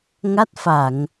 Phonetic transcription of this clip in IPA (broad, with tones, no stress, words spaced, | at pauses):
ŋa˦˥t̚fa˧˩˨ŋ